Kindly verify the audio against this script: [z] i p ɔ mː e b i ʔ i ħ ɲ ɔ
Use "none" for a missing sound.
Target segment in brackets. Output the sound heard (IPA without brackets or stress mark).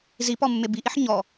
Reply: z